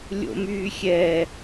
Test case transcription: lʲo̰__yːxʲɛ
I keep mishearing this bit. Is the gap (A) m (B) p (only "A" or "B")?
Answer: A